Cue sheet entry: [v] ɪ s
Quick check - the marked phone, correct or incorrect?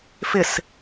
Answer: incorrect